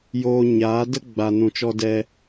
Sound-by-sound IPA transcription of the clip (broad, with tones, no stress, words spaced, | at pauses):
joː˧ɲaː˨˦də˦ ɡ͡ba˧nũ˧ t͡ʃɔ˧dɛ˧